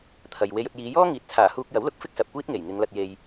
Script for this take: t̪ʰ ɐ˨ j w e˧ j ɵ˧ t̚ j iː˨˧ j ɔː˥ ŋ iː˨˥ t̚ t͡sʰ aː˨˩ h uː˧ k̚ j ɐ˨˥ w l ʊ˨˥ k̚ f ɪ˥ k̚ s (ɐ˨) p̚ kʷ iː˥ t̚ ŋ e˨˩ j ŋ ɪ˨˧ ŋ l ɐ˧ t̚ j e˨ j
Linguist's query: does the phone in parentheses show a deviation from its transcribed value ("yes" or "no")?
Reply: no